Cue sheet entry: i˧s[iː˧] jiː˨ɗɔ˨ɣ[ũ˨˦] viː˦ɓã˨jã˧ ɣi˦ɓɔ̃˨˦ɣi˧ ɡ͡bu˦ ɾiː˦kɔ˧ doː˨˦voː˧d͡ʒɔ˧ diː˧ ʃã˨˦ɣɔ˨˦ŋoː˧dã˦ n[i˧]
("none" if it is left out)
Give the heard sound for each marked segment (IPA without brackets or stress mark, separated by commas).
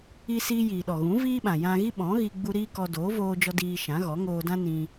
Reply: iː˧, ũ˨˦, ĩ˧